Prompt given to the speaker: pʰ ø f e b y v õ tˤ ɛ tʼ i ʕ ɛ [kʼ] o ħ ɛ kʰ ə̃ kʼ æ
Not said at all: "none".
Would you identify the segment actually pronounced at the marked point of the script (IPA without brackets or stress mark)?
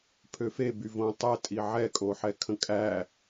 kʼ